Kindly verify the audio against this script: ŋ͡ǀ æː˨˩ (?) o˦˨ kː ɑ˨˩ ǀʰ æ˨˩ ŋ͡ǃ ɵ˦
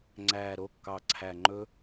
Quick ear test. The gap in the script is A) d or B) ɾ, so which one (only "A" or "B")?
B